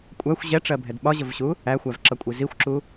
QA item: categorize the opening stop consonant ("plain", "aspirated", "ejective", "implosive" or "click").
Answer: ejective